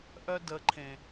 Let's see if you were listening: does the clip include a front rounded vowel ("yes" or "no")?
yes